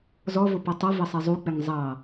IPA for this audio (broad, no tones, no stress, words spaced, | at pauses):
zɔvʊ pʌtˤʌvʌ sˤɛzˤuk͡pɪŋ zˤɑ